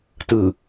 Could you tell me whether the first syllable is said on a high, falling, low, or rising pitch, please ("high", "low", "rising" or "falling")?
low